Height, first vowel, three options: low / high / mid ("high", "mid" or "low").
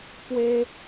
mid